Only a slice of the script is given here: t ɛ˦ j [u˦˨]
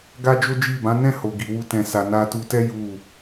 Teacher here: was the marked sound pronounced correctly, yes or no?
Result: yes